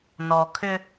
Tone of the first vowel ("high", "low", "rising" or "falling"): low